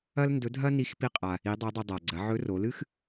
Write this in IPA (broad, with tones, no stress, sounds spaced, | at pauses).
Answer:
ɐ˥ l n d ɵ˧˥ dʱ ɐ˥ n i˧˥ x p i˧ qʼ a˩ | i˧˥ dˤ e˧˥ dˤ i˧ dˤ a˩ ɡ͡ǀ ɐ˩˧ ʕ ɵ˧˥ r o˩˧ l ɨ˥ x